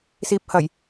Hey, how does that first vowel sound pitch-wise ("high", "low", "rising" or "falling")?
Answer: low